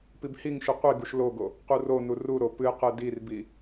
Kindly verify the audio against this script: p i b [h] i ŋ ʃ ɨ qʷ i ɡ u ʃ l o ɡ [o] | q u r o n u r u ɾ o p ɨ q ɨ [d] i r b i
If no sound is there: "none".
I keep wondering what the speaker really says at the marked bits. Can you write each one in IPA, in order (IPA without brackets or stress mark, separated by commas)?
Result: h, o, d